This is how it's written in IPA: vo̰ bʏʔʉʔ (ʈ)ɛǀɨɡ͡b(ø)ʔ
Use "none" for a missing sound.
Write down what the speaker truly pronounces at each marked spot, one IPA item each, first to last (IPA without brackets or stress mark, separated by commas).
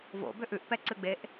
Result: p, e